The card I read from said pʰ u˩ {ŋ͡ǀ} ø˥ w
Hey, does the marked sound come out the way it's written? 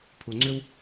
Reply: yes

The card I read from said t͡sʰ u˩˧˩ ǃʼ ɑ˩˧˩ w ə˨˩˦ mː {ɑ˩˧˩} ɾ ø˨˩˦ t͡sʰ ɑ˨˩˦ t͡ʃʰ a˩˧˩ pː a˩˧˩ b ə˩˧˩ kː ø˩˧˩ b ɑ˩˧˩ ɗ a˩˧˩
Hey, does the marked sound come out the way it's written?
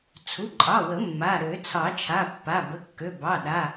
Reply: no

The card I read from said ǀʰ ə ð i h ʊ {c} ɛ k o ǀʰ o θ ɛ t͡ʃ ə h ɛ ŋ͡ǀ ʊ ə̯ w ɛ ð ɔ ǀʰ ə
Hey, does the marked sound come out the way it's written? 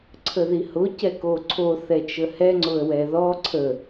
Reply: yes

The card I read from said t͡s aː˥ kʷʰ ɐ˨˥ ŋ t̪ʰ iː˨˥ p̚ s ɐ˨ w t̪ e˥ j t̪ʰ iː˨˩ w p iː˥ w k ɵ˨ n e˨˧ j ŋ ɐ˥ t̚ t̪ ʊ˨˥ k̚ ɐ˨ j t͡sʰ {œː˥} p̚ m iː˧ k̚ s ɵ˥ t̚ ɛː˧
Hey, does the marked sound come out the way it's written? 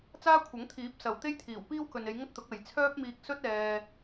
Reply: yes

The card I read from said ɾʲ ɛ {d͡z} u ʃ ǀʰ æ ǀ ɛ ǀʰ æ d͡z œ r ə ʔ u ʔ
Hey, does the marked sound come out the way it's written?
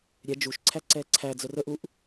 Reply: no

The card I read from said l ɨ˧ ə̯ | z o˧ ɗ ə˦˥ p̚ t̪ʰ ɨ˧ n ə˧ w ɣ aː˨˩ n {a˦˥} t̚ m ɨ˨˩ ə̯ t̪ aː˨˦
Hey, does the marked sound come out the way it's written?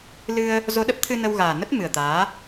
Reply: no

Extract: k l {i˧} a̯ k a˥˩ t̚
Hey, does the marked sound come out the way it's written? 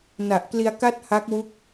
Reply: yes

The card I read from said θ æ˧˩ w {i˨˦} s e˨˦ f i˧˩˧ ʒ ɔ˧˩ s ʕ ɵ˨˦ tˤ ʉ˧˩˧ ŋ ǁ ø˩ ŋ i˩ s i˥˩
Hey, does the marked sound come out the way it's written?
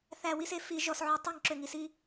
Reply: no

